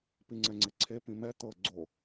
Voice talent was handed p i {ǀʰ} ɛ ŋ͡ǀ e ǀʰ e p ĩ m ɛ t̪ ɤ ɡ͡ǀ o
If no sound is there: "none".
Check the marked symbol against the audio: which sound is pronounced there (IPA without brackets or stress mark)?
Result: ŋ͡ǀ